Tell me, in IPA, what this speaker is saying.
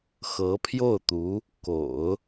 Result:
x ɤ˧˥ pʰ j o˥˩ ʊ̯ t̪ u˧˥ | k o̰˨˩˦ ʊ̯

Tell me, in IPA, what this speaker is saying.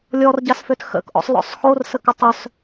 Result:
lʲ ɔ r ɟ a s f ø t x ə̰ k ʔ ɔ̰ sˤ l ɔ̰ sˤ x o r s ə k ə tˤ œ s

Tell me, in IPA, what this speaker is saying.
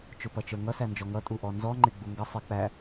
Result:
t͡ʃ ʊ p ʌ t͡ʃ ə˞ ŋ ʌ s æ n d͡ʒ ɔ ŋ ʌ tʼ u ʔ ɔ n z ɔ ŋ͡ǃ ɪ ɡ͡b u ŋ ɡ ʌ sˤ ɪ k͡p æ

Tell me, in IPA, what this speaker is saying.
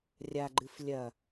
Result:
rʲ a ɡ͡ǃ ɨ f lʲ ɐ

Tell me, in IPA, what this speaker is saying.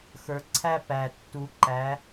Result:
x ə˞˨ ǀʰ æ˥˧ p æ˨ tː u˨˥ ǃ æ˨˥

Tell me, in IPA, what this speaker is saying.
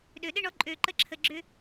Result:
ɗ ø˨ ɗ ɪ˧ ɳ ɔ˨˦ ǃʼ ø˧ ǃ ə˦ ǁʰ ə˧ ɡ͡ǁ ʏ˦

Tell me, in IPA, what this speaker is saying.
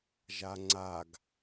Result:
ʒ a ŋ͡ǀ a ɡ

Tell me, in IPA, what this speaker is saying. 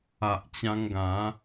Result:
a˨ ʔ t͡ɕ ã˧ ŋ ɡ ã˨˦

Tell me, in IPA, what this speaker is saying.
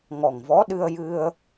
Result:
ŋ ɔ˨˩ ŋ v ɔ˧˥ ɗ ɨ˧ ə̯ j ɨ˧ ə̯

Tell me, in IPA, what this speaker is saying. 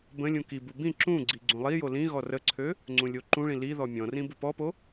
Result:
b ə̃ lʲ ũ k i b u b ĩ ǁ ũ ɡ͡ǀ i ɡ͡ǀ ũ lˠ i j o l ĩ ɣ ɔ r ə ǀʰ ø | ŋ͡ǀ ũ lʲ o ǃ ũ ɭ ĩ l i ð ɔ mʲ ɔ̃ r ĩ b u p ɔ p o

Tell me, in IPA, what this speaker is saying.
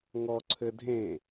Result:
ŋ ɔ ǀʰ ɘ dʱ ẽ

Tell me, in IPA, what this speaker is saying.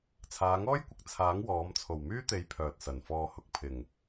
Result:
t͡sʰ aː˨˧ ŋ ɔː˥ j kʷ ɪ˨˥ k̚ t͡sʰ aː˨˥ ŋ w ɔː˨˥ m t͡sʰ o˨˩ w m yː˥ t̪ e˨˥ j pʰ œː˨ t̚ s ɐ˨˩ n f ɔː˧ h ʊ˧ k̚ pʰ ɪ˨˩ ŋ

